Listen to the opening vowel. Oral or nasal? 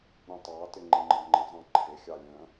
nasal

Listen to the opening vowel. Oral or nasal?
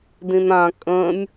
nasal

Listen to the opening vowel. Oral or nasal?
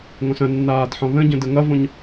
nasal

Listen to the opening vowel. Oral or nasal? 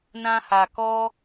nasal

